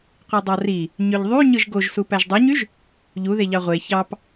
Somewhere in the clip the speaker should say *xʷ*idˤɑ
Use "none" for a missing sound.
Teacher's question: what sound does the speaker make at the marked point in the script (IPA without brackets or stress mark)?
qʷ